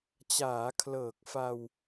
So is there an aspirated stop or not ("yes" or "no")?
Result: yes